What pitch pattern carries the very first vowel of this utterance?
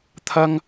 high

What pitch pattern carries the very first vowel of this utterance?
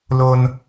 high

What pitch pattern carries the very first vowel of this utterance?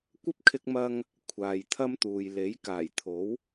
high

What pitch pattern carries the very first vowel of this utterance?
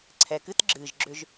low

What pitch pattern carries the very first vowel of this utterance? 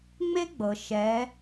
high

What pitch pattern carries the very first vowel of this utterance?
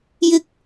high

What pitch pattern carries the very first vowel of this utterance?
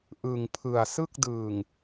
low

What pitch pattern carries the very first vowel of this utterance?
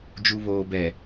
low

